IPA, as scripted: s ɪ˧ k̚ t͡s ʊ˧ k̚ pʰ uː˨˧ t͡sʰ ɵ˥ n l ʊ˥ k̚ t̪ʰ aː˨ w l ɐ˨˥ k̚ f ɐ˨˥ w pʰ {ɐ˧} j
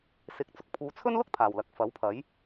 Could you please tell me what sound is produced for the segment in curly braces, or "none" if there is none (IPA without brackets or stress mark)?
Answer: ɐ˨˥